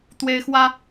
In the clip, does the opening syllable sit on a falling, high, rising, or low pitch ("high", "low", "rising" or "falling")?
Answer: high